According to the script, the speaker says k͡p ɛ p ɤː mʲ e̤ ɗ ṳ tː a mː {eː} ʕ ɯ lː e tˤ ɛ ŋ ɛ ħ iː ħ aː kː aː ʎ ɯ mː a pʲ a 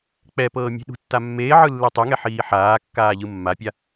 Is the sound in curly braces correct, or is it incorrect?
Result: correct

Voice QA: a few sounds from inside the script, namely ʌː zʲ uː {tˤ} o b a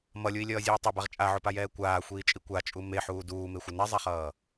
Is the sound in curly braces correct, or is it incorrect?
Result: correct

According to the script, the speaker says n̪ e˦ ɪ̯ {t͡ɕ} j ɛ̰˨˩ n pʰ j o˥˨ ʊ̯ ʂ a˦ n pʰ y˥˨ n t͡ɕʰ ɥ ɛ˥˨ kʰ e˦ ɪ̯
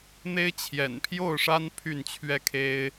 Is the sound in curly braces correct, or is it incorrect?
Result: incorrect: t͡ɕʰ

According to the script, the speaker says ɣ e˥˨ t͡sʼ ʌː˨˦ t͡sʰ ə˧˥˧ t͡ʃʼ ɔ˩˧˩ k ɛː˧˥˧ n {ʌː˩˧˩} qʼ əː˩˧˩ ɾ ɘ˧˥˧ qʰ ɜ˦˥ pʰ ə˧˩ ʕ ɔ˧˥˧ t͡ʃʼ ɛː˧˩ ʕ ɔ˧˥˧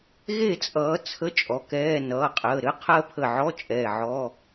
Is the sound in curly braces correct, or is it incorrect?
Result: correct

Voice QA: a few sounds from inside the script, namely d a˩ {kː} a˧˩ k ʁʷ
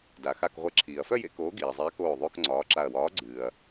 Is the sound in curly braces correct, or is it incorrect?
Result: incorrect: x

